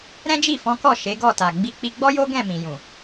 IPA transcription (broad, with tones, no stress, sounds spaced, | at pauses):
ɾ ɛ̃˦ d͡ʒ i˦˨ f ɔ̃˨˦ k ɔ˦˨ ʃ e˨˦ ɡ ɔ˦˨ t a˨ ɡ͡b i˧ k͡p i˧ ɡ͡b ɔ˦ j o˦ ɡ ɛ̃˦˨ m ĩ˨ j ũ˨